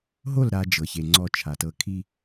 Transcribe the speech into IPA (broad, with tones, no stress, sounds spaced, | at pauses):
ɦ o˦˨ l ɾ a˦ d͡ʒ ɤ˨ ç e˨ ŋ͡ǀ ɔ˦ t͡ʃʰ a˨ t ɤ˦ kʰ i˦